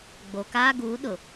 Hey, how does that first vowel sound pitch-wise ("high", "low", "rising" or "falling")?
low